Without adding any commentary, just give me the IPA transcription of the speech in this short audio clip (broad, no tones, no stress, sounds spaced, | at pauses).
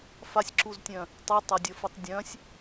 f a sʲ ǁ u z tʲ œ̃ | tˤ i tˤ ɐ dʲ ɐ f ɯ tˤ dʲ œ̃ sʲ